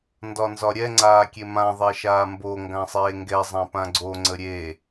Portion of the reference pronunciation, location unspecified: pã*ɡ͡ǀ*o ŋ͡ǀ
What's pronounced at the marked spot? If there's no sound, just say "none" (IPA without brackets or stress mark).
ɡ͡ǀ